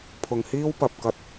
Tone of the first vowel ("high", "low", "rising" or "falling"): low